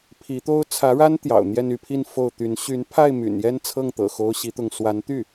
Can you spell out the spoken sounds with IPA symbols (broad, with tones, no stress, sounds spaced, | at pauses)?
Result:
pʰ i˧˥ t̪ o˥ ʊ̯ t͡sʰ ä˧˥ ɻ a˥ n t̪ j ɑ̰˨˩ ʊ̯ n̪ j ɛ˥˧ n y˥˧ pʰ i˥˧ n f o˥˩ ʊ̯ t̪ y˧˥ n ɕ y˧˥ n pʰ a˥˩ ɪ̯ m y̰˨˩ n j ɛ˥˧ n t͡sʰ ɤ˥˩ ŋ t̪ ɤ̰˨˩ x o˥ ʊ̯ ɕ i˥ t̪ ʊ˥˩ ŋ s w a˧˥ n t̪ y˥˩